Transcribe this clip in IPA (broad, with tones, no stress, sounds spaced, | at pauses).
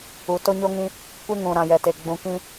u˨ t o˦ ɲ o˦ ŋ ĩ˦ | kʷ e˦ ŋ ũ˨ ɾ ã˨ j ɛ˨ t e˨ ɡ͡b ũ˨ k ĩ˦